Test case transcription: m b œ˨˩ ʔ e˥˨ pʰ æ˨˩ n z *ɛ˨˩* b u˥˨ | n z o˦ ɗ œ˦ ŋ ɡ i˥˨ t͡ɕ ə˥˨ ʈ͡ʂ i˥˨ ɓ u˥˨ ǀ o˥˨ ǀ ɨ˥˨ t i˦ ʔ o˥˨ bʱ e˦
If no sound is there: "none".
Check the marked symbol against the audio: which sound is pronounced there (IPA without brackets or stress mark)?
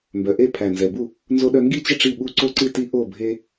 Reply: ɛ˨˩